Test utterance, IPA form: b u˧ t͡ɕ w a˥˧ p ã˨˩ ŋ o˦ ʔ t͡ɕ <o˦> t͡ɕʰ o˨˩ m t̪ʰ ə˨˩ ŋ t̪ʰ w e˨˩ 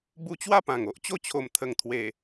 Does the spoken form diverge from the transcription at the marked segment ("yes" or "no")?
yes